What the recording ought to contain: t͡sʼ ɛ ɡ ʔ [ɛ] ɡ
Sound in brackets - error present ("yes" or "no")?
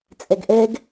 no